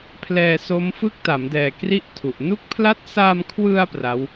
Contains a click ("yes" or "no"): no